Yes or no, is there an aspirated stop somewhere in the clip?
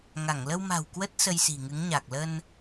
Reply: no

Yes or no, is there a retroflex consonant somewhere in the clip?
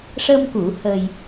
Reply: yes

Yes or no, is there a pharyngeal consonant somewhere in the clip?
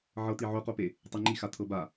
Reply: yes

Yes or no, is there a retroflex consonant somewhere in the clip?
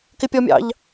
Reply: no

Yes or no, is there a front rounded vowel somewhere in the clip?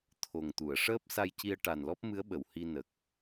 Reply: no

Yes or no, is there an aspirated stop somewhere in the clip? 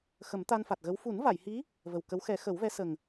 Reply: no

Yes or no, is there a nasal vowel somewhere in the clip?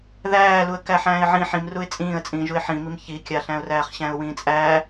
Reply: yes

